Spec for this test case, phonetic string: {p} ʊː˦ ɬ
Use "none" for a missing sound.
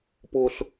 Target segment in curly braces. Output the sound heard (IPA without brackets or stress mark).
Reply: p